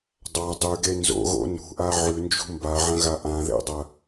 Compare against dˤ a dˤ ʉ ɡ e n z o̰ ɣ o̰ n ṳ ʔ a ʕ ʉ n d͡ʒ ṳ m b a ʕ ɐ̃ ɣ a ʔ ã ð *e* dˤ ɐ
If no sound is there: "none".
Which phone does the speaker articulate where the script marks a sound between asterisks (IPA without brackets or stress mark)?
ḛ